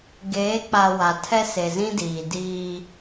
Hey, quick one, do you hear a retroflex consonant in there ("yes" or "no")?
no